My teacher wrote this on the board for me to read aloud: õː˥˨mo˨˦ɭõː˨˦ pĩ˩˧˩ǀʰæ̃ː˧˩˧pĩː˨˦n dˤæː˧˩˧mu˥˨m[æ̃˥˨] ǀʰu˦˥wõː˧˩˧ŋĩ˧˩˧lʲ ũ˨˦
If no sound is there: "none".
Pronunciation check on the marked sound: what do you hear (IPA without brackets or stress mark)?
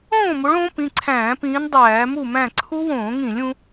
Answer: æ̃˥˨